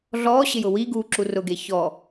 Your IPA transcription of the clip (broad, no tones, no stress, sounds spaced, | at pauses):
ɮ ɔː ɕ ɪ j ʊ w i ɡ uː ǁ u r ʊ ɡ e ç ɔ